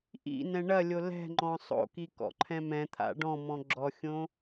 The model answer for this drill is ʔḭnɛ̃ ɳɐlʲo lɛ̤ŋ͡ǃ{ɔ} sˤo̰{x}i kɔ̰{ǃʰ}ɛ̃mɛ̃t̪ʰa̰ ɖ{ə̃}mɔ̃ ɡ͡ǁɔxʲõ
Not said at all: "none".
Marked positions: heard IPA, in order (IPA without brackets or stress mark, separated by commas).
ɔ̃, k, ǃʰ, ɔ̃